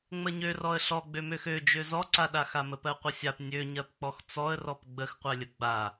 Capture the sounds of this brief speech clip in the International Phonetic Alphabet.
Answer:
ŋ͡məɲørɔə̯ ɬɔɡ͡bømøx ød͡ʒø zɔǀaɗaxa məpɜqʷəsʲap nʲøɲɜpk͡pɔx t͡sɔə̯rɔp ɡ͡bəxqʷɜlʲə ɡ͡ba

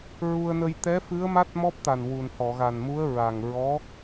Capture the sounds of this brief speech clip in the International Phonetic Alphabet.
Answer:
ɹu˧ə̯nə˧j t̪ɛ˧˥fɨ˧˥ə̯ma˦˥t̚ mɔ˦˥p̚t̪a˨˩nwu˨˩n hɔ˨˩˨ɣa˨˩nmu˧˥ə̯ ɹa˨˩ŋ ɹɔ˧˥

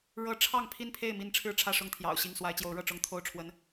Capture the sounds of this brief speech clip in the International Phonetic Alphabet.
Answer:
ɻɤ˦ ʈ͡ʂʰɑ˥˨ŋpʰi˥˨npʰe˥˨ɪ̯ mi˥˨n ʈ͡ʂʰɻ̩˥˨ʈ͡ʂʰä˥˨ ʂʊ˥˨ŋt̪ʰjɑ̰˨˩ʊ̯ɕi˥˨ŋ swa˨˦ɪ̯t͡ɕjo˨˦ʊ̯ ɻɤ˥˨ʈ͡ʂʊ˦ŋt̪ʰo˥˨ʊ̯ʈ͡ʂʰwə˦n

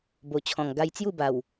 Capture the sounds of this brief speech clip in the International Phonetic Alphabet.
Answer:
bo˨˩t͡ɕʰɔ̃˨˩ŋ ɡa˧jt͡sju˥˧ba˨˩w

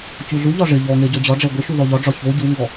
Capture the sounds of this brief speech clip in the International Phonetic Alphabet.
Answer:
cuɮuʎɒ ʐɪ ʎɔŋe ɟɔd͡ʑɒɖ͡ʐɛ ɡʷɪ ʃuðɔʎɒɖ͡ʐɒ ço ɟuŋɡɔ

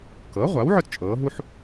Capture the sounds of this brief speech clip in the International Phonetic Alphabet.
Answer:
kɤ˩˥ʁʷa˩˥w ʕɵ˥tt͡ʃʼɤː˩˥ɦu˥ħ

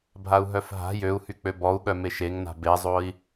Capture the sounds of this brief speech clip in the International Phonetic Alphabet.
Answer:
bʱau̯ɦœfɦa̤ jøu̯hyk͡pø bɔu̯ɠœmeʃ eŋna̤ bezˤoi̯

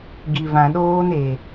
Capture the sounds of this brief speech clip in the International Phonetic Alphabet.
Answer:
ɡi˨vã˨ɗoː˦n e˨

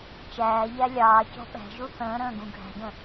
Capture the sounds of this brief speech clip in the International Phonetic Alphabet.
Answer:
t͡ʃæːʎæ lʲɑːcɔ̤ ɓæ̤ʒu θə̃ːɾə̃ːɡũ ɡʱæ̤ɡə̃

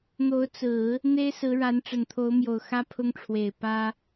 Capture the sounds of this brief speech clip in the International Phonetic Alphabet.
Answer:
n̪o˧˥ʊ̯t͡sɹ̩˨˩˦ | n̪e˥ɪ̯sɹ̩˧˥ɻa˧˥n ʈ͡ʂə˨˩nt̪ʰo˧˥ʊ̯mjo˨˩ʊ̯ xä˥pʰʊ˥ŋʈ͡ʂʰwe˨˩ɪ̯ pä˥

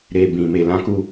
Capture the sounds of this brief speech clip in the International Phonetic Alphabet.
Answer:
ɾe˨bĩ˨me˨ lã˧ku˧

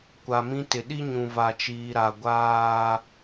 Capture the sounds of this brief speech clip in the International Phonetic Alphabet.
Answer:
kʷa˨mĩ˦tɪ˨ ɗi˦ɲũ˨ va˨t͡ʃiː˨ɾa˨ ɡʷaː˦

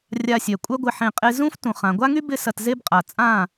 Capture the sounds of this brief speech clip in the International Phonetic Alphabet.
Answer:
rʲa˧sʲœ˨ kʷʼœ˦ɡʷɪ˧ħẽ˧ qʼe˧ zũ˦f tũ˨χã˨ɡʷa˦ŋy˦ bɪ˦sɐ˧tze˦bqʼa˨ t͡sʼã˦˨

